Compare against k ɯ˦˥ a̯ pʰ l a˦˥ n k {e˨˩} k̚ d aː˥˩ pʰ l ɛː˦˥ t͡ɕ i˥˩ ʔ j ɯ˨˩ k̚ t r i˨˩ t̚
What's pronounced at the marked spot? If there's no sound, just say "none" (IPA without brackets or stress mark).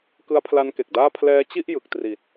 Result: e˨˩